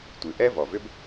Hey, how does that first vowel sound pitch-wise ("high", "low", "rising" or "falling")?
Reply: low